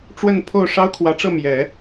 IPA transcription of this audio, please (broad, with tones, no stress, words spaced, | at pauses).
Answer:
ʈ͡ʂwə˥˧npʰo˥˩ʊ̯ ʂɑ˥ʊ̯kʰwä˧˥ʈ͡ʂɤ˥˩ mjɛ˨˩˦